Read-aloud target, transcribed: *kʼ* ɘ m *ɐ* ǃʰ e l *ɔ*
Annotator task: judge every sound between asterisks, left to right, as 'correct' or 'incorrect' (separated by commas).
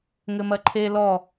incorrect, correct, correct